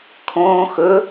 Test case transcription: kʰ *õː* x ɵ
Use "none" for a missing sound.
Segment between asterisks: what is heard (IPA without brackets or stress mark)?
õː